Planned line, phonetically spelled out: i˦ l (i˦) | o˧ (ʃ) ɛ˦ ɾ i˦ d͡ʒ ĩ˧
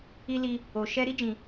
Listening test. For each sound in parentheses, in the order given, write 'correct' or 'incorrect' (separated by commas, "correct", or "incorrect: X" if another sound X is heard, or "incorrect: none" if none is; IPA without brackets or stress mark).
correct, correct